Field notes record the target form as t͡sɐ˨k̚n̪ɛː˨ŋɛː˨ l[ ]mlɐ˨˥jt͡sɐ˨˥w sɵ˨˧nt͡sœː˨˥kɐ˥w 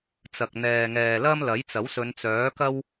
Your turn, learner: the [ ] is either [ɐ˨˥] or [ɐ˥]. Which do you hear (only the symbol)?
ɐ˥